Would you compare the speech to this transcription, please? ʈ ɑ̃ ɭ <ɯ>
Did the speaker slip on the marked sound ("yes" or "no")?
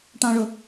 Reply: yes